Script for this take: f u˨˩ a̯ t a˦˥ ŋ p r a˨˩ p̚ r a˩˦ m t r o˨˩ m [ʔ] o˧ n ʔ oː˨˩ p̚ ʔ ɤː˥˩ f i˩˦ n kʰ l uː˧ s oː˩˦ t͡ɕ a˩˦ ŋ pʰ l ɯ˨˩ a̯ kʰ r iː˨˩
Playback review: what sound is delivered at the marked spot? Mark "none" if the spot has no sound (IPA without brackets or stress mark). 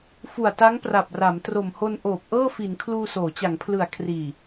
h